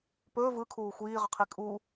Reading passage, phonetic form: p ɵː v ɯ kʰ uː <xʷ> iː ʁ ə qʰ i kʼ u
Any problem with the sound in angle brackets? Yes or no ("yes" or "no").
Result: no